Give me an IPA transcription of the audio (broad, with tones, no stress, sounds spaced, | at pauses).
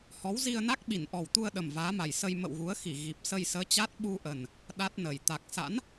h ɔ˨˦ w z i˧ ə̯ n a˦˥ k̚ ɓ i˧˩ n ʔ ɔ˨˩ w t̪ u˧ ə̯ ɗ ə˨˩ m v aː˨˦ m a˨˩ j s ə˧ j m ə̰˧˨ w ɣ u˨˦ ə̯ x i˧˩ ɣ i˨˩ p̚ s ə˧ j s əː˨˦ t͡ɕ a˦˥ t̚ ɓ u˧ ʔ ə˨˩ n | ɗ a˦˥ t̚ n ə˨˩ j t̪ a˨˩ k̚ s a̰˧˥ n